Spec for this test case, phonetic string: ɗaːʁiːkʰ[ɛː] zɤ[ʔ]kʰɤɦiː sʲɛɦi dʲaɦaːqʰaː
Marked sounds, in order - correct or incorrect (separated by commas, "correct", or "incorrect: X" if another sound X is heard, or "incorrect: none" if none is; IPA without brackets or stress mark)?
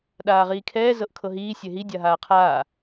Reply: correct, correct